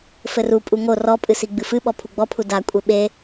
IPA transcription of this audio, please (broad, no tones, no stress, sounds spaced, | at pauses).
f ɘ r u pʼ u ŋ o r ɔ pʼ ɨ s i ɡ͡b ɨ f ɨ ɓ ɔ pʰ u ɡ͡b ɔ pʰ u d a kʷʼ e ɓ e